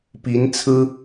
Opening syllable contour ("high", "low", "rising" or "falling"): rising